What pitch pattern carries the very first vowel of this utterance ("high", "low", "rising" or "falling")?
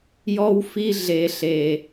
high